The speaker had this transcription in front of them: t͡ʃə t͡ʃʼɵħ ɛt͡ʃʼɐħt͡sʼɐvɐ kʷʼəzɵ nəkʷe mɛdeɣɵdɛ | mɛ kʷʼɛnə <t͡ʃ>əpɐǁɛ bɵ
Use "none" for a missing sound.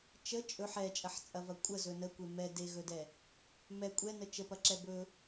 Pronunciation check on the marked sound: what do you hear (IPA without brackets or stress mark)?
t͡ʃ